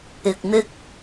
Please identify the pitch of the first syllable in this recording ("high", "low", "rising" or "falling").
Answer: low